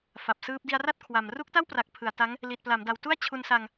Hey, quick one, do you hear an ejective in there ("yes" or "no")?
no